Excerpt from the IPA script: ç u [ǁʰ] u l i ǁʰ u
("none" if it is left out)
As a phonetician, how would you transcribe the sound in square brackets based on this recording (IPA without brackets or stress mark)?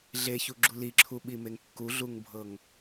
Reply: ɡ͡ǁ